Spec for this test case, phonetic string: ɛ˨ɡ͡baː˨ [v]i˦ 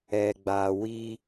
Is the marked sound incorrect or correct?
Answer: incorrect